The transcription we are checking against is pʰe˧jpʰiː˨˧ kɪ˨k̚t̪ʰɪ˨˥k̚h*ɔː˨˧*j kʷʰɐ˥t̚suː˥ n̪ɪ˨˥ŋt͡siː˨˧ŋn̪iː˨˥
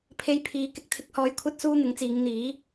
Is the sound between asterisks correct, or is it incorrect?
correct